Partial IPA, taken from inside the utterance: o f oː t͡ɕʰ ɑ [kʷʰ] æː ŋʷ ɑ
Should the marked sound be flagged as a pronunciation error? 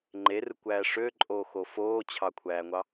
no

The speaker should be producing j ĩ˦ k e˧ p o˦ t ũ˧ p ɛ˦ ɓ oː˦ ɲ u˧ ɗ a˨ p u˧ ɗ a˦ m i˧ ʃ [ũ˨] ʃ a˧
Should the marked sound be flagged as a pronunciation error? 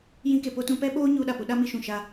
no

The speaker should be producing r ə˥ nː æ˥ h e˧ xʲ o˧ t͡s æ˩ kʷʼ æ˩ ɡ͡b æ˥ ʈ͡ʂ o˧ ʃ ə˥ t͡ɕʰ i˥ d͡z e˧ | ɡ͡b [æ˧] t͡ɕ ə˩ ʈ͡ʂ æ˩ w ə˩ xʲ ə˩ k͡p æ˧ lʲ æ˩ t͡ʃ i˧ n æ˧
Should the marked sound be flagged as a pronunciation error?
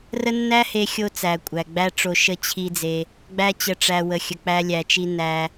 no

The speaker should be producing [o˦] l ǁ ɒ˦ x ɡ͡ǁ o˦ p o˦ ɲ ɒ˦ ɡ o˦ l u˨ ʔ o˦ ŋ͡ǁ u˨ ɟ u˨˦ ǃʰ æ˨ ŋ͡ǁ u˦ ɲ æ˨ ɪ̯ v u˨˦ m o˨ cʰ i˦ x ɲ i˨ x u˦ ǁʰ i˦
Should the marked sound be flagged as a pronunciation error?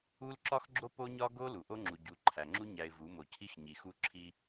yes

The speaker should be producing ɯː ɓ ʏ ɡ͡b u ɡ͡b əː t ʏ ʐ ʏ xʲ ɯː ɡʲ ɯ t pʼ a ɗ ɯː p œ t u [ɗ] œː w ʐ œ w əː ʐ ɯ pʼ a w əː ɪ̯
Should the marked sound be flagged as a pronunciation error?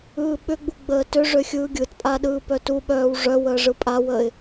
yes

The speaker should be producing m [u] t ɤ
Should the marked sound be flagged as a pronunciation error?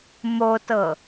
yes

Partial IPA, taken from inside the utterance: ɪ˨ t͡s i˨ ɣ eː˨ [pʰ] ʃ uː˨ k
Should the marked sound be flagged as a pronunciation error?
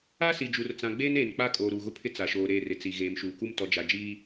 yes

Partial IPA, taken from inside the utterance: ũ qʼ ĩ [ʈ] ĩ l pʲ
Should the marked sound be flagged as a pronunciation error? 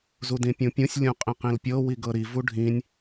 yes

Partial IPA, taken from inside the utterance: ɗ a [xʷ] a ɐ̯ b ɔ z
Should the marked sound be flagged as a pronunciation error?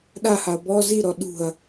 yes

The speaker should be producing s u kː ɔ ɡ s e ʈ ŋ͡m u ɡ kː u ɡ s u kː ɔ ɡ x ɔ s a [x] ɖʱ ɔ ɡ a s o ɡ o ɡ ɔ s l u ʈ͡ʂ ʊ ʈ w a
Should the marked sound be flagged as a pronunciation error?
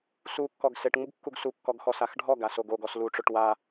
no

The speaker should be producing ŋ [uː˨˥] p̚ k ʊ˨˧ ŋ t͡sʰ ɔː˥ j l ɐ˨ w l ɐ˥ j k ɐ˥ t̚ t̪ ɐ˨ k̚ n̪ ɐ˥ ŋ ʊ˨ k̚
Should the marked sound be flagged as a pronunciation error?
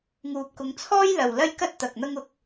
yes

